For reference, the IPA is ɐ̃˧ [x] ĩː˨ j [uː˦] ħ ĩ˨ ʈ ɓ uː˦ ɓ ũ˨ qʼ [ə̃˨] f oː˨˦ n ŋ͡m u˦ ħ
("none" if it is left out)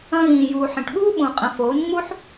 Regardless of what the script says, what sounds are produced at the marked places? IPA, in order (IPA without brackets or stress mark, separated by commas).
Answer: ɣ, uː˨, ə̃˨